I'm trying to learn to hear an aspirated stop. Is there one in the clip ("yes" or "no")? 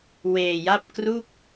no